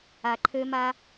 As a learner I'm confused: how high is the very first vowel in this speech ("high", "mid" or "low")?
low